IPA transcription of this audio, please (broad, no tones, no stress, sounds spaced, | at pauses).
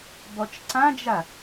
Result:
b ɔ t͡ʃ ǀ ã d͡ʒ a